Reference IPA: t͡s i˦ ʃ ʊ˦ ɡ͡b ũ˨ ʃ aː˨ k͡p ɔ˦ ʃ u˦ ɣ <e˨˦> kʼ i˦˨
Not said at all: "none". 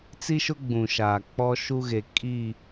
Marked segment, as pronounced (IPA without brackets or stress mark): e˨